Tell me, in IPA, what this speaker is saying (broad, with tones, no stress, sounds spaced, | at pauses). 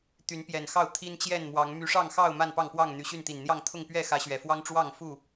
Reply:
t̪ y˨˦ n p j ɛ˨˩ n x ɑ˥˨ ʊ̯ t̪ʰ i˦ n t͡ɕ j ɛ˥˨ n m w ɑ˨˦ ŋ m y˨˦ ʂ ɑ˥˨ ŋ x ɑ˥˨ ʊ̯ m a˥˨ n p ɑ˥˨ ŋ p w ɑ˥˨ ŋ n̪ y˨˩ ɕ y˥˨ n t̪ i˨˩ n n̪ j ɑ˥˨ ŋ t̪ʰ ʊ˥˨ ŋ p ɥ ɛ˥˨ x ä˨˦ ɕ ɥ ɛ˨˩ f w ɑ˦ ŋ ʈ͡ʂ w ɑ˥˨ ŋ f u˥˨